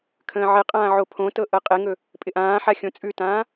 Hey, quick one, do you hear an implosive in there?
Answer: no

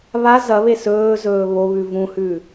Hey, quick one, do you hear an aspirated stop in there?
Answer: no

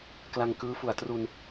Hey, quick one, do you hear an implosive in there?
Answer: no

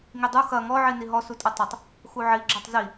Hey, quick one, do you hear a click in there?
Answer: yes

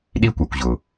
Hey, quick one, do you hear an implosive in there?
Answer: yes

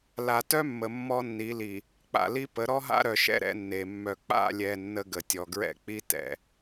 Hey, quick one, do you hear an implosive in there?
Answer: no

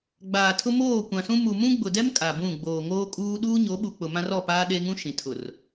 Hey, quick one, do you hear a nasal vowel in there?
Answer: yes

